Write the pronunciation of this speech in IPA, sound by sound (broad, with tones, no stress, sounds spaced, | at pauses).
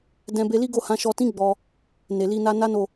d ɛ̃˧ b e˧ l i˦ ɡ o˦˨ h ã˨˦ ʃ ɔ˧ t ĩ˦ ɡ͡b ɔ˧ | n e˨ l i˧ n a˧ n a˦ n o˦˨